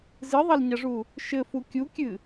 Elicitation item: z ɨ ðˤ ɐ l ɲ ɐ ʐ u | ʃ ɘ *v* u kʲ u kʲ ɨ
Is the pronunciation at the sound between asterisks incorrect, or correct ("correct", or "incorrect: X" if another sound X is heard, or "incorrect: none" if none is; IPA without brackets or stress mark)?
incorrect: f